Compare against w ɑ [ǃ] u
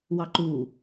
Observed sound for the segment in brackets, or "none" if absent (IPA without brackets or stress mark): ǃ